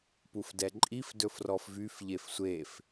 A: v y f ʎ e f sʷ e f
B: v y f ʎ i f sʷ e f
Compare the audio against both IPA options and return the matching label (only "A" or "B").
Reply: A